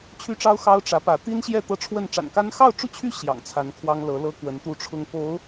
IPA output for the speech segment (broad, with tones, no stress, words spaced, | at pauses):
t͡ɕʰy˥ʈ͡ʂɑ˥ʊ̯ xɑ˥ʊ̯ ʈ͡ʂä˧˥pä˧˥ t̪i˥nɕjɛ˥˧ t̪ɤ˥˧ʈ͡ʂʰwə˥˩n ʈ͡ʂa̰˨˩nka˥n xɑ˥˧ʊ̯ʈ͡ʂu˥˩t͡ɕʰy˥ ɕjɑ̰˨˩ŋt͡sʰa˧˥nkʰwɑ˥ŋ lɤ˧˥lɤ˥kwə˧˥n t̪u˥˩ʈ͡ʂʰʊ˥ŋ po˧˥ʊ̯